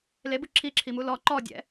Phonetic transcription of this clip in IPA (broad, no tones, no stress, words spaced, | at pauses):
lebɯ ǁʰiǁʰimu lɔ ǃɔdʲɛ̰